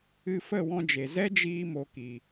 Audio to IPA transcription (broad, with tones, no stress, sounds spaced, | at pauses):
ɨ˧ f ə˦˨ w ɔ̃˧ d͡ʒ e˨ z ɛ˦ d͡ʒ iː˧ m o˨ k i˨